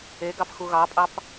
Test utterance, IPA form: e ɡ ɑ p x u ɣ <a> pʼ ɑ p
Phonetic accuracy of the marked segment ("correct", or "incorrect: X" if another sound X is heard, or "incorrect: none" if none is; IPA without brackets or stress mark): incorrect: ɑ